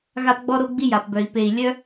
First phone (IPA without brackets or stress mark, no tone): ɣ